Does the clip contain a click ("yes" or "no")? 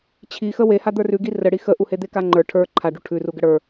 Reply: yes